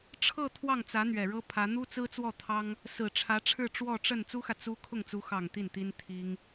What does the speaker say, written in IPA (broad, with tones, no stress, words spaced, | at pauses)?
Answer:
ʈ͡ʂʰɤ˥˧ t̪ʰwɑ˥˩ŋ t͡sä˧˥n̪ɥɛ˨˩ɻɤ˥ pʰä˧˥ n̪u˥t͡sɹ̩˥t͡swɔ˥˩ t̪ʰɑ˥ŋ | sɹ̩˨˩ʈ͡ʂʰä˧˥ʈ͡ʂʰɻ̩˥˧ ʈ͡ʂwɔ˥˧ʈ͡ʂə˥˩n t͡su˥xä˨ t͡su˥ kʰʊ˥˩ŋt͡su˧˥ xɑ˨˩ŋ t̪i˥˩nt̪i˥n t̪ʰi˥ŋ